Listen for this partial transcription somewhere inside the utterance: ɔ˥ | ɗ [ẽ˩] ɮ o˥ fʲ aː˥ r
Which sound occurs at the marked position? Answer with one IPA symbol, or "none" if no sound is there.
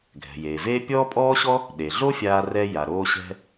e˩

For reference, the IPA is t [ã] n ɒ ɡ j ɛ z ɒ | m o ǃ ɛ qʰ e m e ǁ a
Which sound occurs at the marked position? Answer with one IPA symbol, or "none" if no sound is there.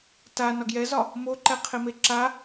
a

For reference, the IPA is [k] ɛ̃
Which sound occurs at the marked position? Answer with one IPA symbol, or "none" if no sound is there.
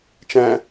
t͡ʃ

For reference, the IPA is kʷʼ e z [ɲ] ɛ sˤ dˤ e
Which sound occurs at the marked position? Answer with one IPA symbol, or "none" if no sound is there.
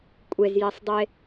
j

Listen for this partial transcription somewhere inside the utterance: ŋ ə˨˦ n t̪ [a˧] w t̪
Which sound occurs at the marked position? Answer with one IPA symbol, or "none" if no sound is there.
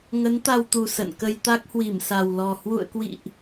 a˧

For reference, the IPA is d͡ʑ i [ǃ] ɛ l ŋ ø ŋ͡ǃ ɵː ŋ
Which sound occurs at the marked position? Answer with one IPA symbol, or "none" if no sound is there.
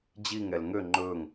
ŋ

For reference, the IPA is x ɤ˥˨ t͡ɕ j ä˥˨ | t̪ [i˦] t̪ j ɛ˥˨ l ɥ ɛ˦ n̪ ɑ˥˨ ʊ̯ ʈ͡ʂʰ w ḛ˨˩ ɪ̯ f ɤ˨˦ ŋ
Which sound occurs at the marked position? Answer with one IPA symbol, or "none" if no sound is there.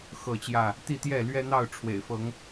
i˥˨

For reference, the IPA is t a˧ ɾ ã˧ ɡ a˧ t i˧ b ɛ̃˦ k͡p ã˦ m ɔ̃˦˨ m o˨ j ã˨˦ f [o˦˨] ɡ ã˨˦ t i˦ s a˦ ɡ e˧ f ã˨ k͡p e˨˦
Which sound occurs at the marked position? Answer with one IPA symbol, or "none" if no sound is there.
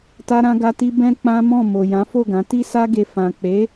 o˦˨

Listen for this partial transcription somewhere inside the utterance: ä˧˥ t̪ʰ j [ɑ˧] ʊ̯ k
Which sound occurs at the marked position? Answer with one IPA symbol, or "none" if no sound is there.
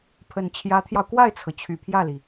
ɑ˧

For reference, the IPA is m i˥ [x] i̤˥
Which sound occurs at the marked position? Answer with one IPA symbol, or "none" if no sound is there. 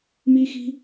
x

